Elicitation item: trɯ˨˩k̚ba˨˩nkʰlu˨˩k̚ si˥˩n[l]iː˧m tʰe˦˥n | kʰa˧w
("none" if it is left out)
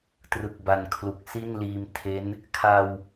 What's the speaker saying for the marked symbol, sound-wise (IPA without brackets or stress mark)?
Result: l